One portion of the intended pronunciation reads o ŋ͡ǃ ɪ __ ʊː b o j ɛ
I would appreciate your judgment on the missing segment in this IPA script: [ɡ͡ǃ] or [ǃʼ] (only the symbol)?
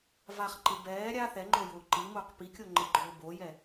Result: ɡ͡ǃ